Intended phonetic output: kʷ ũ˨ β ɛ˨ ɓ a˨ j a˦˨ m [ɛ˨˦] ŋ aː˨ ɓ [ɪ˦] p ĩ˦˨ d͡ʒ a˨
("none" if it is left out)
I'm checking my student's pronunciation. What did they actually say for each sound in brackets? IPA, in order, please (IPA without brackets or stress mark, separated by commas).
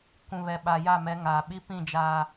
ɛ˨˦, i˦